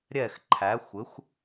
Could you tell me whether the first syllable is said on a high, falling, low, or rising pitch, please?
falling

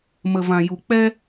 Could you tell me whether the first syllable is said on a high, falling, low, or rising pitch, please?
low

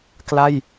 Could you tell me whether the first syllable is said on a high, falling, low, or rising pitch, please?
falling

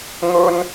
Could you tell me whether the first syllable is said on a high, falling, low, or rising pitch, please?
high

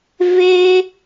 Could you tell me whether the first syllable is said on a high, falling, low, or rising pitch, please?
high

